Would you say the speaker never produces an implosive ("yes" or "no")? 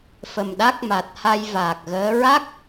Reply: no